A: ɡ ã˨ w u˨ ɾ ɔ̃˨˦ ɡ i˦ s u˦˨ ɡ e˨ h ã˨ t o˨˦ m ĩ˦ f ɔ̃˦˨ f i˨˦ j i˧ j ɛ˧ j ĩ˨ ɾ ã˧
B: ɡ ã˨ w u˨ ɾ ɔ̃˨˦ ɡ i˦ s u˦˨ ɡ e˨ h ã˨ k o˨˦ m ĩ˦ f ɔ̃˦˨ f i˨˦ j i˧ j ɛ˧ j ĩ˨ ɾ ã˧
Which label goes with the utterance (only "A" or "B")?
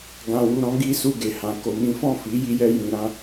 B